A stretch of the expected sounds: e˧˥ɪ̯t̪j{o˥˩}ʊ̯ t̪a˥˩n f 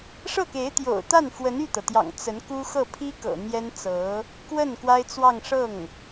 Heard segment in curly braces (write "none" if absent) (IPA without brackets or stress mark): o̰˨˩